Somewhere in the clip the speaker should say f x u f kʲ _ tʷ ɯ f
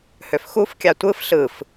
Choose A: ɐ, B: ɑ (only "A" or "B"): B